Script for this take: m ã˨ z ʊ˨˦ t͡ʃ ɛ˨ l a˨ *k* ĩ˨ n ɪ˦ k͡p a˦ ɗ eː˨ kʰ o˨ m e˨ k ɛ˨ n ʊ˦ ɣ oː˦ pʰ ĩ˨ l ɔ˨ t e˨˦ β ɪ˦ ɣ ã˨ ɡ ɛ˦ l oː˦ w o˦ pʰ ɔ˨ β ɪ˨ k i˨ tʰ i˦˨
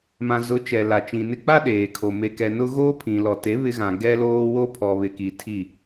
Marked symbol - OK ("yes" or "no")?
no